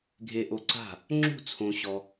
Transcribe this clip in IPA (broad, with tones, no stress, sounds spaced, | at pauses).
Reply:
ɡʱ e˨ ʔ o˨ ǀ a̤˥˩ | ŋ͡ǁ ṳ˥˩ t͡sʰ õ˨ ɕ ɔ˨